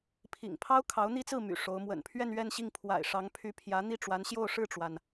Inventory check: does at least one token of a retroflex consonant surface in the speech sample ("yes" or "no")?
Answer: yes